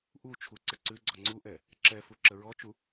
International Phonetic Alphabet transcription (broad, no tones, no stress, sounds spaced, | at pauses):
ʔ u t͡ʃʰ u ǀ ə ǀ ʉ ɡ͡ǀ ɔ ŋ͡ǀ u ʔ ɛ | ǁ ɛ f u ǁ ə ɹ ɔ t͡ʃ u